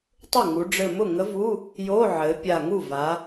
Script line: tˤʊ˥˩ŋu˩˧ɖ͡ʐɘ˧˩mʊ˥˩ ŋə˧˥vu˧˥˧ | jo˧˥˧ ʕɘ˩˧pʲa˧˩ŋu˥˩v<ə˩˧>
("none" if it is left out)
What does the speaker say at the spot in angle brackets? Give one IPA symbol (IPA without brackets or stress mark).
a˩˧